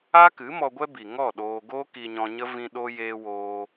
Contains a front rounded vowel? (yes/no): no